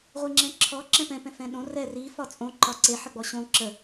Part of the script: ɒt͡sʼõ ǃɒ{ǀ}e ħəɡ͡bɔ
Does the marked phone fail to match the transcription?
no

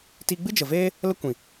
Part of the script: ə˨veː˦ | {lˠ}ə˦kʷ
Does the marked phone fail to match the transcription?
yes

